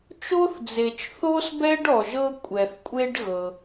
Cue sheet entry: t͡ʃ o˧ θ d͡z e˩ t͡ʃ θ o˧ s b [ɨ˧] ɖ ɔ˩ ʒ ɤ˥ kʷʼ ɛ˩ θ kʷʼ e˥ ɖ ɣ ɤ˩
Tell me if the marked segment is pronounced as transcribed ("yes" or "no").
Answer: no